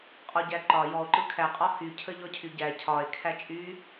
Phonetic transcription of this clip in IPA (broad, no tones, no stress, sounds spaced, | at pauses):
qʼ ɔ ɟ æ ǃ ɒ j ɔ o̯ ǃ ɯ kʰ æ qʼ ɒ h y cʰ ə ʎ ɔ cʰ y ɟ æ cʰ ɒ e̯ kʰ æ t͡ʃʼ y